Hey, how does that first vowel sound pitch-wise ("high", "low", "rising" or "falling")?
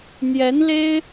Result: rising